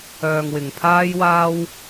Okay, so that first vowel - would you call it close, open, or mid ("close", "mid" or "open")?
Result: mid